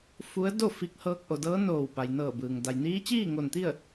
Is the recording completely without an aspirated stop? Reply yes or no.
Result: yes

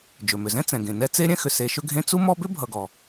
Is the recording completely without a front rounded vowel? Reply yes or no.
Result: no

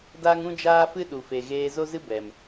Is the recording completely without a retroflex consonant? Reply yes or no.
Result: yes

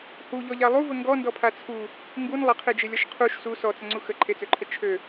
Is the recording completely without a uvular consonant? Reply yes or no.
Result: no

